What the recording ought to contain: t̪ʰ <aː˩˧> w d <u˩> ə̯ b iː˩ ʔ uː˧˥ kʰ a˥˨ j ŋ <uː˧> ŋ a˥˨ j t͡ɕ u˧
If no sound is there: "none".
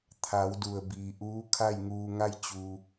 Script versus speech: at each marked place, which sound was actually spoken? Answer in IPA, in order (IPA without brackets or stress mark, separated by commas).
aː˩˧, u˩, uː˧